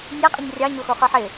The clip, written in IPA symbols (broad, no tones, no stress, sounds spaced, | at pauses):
nʲ a qʼ ɪ ɲ rʲ ɑ ɲ o x o χ ə˞ ħ ɪ